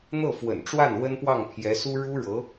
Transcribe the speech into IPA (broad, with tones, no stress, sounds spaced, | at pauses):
n̪ ɤ˥˩ f w ə̰˨˩ n ʈ͡ʂ w a˥˩ n w ə˥ n p w ɑ˥˩ ŋ pʰ j ɛ˧˥ s u˥ ɻ u˥ ɻ ɤ˧˥